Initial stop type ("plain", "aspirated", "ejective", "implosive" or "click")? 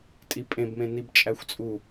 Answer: ejective